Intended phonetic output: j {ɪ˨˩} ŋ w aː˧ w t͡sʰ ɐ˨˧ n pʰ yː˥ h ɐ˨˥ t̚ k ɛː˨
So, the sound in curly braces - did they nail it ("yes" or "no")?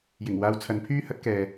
yes